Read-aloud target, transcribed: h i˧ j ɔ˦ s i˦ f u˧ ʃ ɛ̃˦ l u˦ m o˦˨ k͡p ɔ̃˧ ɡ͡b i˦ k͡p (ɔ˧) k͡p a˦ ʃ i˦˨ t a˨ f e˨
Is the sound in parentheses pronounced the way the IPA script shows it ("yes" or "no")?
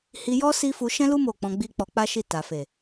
yes